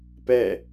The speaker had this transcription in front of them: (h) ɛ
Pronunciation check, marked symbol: incorrect: p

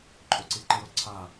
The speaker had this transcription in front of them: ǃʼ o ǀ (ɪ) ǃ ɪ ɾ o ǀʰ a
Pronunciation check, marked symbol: incorrect: i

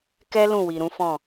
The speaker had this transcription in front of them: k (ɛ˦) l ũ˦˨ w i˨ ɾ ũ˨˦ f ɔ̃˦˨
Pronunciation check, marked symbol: correct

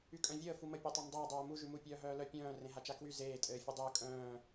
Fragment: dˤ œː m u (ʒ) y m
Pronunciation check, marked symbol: correct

